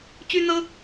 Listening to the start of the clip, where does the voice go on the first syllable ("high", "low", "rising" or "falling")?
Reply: high